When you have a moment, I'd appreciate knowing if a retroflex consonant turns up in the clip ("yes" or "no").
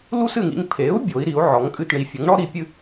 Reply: yes